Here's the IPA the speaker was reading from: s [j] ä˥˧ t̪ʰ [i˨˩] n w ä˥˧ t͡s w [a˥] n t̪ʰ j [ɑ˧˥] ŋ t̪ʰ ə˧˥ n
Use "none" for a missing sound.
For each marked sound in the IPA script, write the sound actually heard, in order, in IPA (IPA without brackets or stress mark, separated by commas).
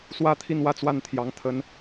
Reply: w, i˥˧, a˥˩, ɑ˧˥